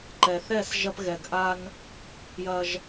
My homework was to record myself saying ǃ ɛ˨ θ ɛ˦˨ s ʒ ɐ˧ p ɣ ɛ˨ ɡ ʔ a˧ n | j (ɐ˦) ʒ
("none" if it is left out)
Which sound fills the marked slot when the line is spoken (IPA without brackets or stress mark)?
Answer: ɐ˧